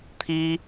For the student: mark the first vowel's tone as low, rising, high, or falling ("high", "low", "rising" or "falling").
high